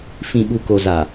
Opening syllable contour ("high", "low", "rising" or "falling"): low